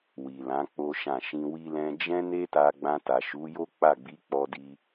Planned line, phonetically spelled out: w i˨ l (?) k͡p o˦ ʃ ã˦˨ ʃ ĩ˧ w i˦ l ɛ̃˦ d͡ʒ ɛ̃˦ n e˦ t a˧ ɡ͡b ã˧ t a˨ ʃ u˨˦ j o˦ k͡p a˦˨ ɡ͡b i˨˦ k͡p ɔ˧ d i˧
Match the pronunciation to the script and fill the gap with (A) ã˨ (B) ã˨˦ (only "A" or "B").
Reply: B